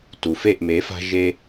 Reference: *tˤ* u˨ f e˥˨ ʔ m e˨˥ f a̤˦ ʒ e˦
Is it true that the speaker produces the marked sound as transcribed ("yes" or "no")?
no